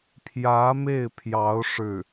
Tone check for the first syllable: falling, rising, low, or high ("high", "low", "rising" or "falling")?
rising